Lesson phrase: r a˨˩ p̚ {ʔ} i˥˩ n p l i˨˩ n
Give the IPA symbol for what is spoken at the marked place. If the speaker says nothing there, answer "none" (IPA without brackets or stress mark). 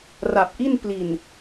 ʔ